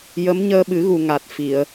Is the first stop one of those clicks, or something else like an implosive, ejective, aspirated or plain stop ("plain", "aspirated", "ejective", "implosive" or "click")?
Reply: implosive